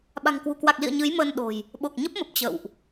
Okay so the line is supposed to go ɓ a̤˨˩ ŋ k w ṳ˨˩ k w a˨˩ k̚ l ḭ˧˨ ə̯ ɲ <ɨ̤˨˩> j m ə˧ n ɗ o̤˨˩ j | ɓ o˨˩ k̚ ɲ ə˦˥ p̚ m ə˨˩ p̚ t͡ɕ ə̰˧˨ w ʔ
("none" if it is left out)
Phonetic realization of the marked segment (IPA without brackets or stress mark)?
ɨ˨˦